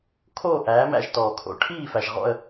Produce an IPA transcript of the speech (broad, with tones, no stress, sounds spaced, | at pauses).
kʰ oː˦˨ ʔ æː˨˥ m æ̰˦˨ ʒ t ɔː˩ kʰ o̰˨˩˦ ʈʰ iː˦˨ f æ˩ ʒ ʁ ɔ̰˦˨ ə̯